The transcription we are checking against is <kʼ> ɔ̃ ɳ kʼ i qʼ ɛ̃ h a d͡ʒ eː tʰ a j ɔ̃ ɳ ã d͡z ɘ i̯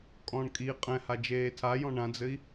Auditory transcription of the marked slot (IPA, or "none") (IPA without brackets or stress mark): kʼ